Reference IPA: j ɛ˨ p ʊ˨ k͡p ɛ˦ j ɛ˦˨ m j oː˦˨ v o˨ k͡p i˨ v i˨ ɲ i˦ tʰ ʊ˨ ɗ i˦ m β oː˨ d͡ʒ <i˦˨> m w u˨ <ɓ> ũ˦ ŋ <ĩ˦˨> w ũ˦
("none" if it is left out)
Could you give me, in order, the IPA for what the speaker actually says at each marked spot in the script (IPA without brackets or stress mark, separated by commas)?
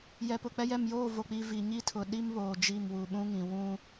i˦˨, ɓ, ĩ˨